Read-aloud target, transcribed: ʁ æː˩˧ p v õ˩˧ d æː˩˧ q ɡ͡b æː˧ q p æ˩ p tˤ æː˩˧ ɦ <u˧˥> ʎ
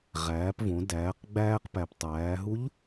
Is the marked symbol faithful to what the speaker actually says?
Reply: yes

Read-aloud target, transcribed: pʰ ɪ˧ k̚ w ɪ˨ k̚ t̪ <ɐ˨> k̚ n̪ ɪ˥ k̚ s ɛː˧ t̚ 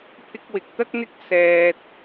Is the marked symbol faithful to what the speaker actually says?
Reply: no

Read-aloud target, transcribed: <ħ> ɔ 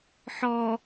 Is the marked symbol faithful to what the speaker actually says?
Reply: yes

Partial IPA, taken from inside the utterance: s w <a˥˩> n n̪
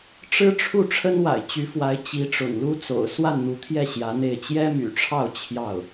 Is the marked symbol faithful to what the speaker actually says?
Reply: yes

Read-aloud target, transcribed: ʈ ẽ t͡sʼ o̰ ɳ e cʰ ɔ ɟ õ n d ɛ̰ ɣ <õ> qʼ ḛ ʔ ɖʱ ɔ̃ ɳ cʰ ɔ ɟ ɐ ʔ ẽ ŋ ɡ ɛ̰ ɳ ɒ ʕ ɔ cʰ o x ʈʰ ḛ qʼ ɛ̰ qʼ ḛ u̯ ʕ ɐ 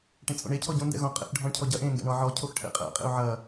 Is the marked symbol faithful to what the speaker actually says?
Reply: yes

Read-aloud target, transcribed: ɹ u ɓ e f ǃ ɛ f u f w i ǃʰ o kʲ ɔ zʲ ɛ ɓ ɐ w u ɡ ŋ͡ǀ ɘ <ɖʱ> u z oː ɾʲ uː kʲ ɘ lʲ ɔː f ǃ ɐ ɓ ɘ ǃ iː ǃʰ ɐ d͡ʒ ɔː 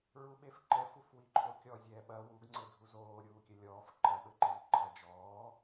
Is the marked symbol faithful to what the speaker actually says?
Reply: no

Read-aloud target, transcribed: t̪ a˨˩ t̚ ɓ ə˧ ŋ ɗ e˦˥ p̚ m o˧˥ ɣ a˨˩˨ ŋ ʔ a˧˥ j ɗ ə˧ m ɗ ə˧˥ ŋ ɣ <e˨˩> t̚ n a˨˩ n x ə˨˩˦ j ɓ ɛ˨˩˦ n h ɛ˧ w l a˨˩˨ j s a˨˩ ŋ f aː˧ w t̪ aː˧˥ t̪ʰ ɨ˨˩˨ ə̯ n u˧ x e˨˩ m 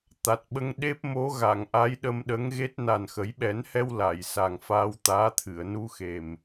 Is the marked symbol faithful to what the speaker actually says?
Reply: no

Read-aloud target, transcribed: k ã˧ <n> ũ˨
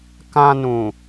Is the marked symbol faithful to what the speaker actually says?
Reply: yes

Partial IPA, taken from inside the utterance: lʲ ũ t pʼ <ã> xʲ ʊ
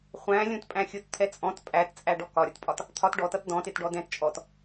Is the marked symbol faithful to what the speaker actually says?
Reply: no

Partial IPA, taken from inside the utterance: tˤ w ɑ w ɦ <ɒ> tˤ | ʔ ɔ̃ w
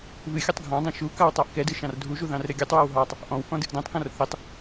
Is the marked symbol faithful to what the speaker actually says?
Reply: no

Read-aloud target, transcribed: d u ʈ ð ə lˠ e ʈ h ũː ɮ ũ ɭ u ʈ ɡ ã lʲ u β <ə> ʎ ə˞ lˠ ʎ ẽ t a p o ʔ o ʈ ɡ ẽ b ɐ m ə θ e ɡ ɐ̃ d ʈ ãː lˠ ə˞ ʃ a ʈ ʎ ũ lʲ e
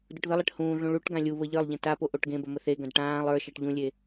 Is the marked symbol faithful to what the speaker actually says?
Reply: yes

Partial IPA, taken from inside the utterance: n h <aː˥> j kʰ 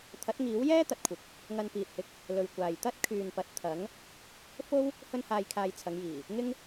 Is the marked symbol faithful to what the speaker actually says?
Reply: no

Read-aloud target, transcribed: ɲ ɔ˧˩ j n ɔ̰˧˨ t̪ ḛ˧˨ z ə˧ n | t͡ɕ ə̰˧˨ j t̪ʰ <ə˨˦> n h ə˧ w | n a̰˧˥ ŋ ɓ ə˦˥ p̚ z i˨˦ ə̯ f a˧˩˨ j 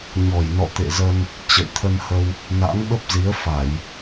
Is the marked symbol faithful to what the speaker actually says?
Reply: no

